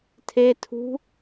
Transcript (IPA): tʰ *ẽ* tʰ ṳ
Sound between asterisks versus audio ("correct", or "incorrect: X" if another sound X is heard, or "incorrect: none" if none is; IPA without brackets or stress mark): incorrect: e